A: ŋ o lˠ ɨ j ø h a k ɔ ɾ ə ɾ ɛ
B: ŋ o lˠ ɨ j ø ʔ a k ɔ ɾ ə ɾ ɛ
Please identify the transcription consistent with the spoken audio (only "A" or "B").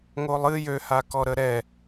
A